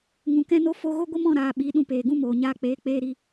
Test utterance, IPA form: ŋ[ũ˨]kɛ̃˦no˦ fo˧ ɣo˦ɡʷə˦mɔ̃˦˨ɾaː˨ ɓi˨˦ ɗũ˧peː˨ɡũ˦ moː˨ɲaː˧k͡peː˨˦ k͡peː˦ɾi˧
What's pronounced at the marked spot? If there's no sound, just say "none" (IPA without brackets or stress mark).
ũ˨